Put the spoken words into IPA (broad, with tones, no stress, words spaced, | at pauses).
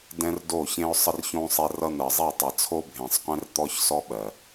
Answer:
dɛ̃˦r do˦˨çẽ˦ʊ̯sˤə˦rçõ˦ sˤe˦rʌ˦ n̪ɜ˨zˤe˦˨tˤʌ˨t͡sʰo˦ bʱẽ˨sˤqʷẽ˦rt̪ɔ˦çsɔ˦ ɓɜ˨